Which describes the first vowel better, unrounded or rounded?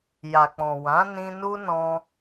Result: unrounded